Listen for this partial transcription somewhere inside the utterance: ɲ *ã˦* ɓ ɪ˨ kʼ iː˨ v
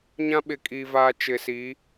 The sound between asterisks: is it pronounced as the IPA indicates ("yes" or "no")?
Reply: yes